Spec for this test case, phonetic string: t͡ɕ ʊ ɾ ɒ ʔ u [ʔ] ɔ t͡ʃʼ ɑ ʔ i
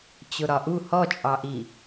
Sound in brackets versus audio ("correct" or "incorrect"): incorrect